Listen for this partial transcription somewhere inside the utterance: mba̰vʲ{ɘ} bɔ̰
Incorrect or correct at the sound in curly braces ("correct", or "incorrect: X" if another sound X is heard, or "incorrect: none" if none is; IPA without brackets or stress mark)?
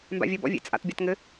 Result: correct